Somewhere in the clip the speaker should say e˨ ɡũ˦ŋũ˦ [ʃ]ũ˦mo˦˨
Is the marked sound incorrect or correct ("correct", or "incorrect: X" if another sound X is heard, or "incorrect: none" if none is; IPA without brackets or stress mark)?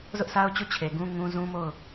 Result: incorrect: z